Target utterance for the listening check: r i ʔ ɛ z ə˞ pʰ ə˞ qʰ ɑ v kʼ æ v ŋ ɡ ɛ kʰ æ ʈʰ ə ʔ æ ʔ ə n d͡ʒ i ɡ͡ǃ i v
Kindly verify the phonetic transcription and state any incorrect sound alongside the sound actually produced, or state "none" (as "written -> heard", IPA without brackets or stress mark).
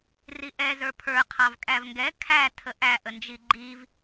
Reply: ʈʰ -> tʰ